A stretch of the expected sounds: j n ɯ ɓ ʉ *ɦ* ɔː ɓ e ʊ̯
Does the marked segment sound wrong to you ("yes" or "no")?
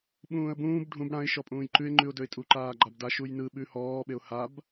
yes